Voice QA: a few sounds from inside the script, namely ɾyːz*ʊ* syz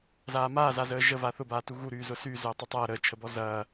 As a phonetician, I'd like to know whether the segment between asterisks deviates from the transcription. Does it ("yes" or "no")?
no